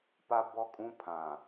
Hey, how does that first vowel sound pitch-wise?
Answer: high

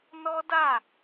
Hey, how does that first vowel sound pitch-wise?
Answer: high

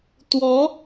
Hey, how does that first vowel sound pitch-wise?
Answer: rising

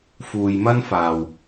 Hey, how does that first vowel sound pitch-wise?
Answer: low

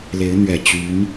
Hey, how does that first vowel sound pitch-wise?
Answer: rising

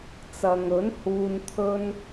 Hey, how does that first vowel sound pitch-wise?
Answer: low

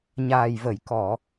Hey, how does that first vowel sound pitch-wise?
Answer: low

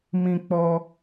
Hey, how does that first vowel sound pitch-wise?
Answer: high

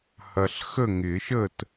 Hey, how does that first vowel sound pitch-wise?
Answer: low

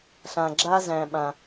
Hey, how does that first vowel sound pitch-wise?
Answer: low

